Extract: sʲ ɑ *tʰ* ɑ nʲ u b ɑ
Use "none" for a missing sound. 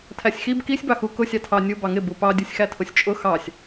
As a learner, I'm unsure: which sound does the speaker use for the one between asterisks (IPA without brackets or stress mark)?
tʰ